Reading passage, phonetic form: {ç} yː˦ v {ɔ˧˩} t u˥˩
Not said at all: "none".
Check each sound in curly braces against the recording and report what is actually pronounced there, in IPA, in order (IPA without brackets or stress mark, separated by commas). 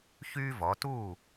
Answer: ç, ɔ˩˧